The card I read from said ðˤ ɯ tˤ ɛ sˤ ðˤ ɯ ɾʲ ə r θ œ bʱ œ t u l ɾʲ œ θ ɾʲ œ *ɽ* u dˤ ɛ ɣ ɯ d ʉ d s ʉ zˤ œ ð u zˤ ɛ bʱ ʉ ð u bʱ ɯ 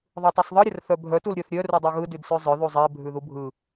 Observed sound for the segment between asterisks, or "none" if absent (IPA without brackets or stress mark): r